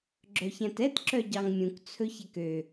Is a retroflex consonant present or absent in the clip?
absent